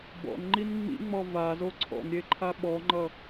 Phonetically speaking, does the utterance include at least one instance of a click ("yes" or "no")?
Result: yes